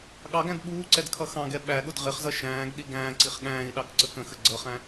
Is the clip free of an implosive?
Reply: no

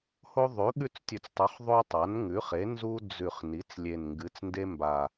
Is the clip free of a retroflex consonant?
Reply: yes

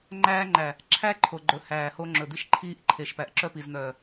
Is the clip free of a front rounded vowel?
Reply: no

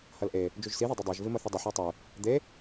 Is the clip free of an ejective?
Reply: yes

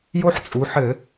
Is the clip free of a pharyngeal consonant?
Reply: no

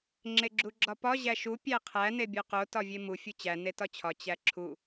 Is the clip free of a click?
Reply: no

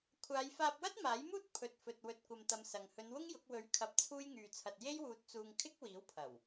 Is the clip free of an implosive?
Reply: yes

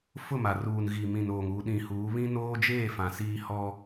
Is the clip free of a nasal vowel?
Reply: no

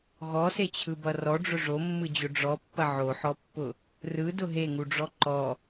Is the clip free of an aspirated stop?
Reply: no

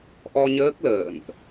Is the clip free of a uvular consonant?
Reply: yes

